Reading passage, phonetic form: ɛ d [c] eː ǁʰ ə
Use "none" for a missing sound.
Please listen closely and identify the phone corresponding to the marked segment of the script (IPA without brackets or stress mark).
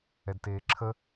t